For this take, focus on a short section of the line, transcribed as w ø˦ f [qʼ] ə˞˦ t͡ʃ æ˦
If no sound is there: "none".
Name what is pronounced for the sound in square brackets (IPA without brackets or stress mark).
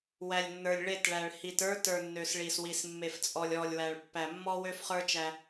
χ